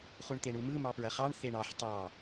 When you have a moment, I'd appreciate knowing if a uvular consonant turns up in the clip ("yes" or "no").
yes